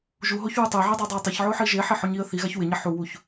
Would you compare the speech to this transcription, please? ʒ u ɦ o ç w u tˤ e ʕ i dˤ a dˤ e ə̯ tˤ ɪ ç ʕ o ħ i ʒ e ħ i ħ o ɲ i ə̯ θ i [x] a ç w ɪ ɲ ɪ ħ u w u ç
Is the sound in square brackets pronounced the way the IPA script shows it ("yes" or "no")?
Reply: no